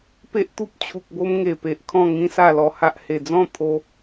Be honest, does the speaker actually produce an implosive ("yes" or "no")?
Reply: no